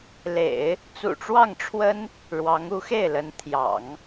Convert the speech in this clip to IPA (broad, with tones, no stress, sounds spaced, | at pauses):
l ḛ˨˩˦ ɪ̯ | t͡s ṵ˨˩ ʈ͡ʂ w ɑ˥˩ ŋ ʈ͡ʂʰ w ə˥ n | ɻ w ɑ˧˥ ŋ u˧˥ x e˥˩ ɪ̯ l ə˧˥ n t̪ʰ j ɑ̰˨˩˦ ŋ